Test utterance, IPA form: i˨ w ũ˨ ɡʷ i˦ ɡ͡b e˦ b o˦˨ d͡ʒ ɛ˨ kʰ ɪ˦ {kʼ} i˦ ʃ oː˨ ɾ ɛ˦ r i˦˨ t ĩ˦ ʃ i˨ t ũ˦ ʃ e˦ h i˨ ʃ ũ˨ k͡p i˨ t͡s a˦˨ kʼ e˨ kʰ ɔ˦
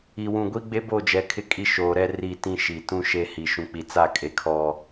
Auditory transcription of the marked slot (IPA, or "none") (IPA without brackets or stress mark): kʼ